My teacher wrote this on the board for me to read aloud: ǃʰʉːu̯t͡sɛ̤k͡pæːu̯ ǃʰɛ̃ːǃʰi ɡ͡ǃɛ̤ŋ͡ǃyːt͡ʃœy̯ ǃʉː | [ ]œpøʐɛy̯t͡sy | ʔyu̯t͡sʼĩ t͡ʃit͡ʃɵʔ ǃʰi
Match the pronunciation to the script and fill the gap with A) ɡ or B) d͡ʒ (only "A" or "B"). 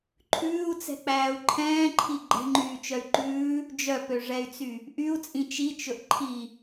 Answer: B